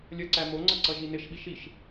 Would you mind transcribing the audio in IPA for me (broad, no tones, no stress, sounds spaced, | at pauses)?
lʲ ʌ ǀ æ m o ŋ͡ǀ ʌ ǀ ʌ ʒ i n ɪ ʃ ɓ i ʃ i ʃ